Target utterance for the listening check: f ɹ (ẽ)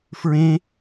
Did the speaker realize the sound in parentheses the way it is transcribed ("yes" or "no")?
yes